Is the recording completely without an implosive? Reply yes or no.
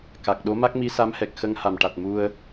no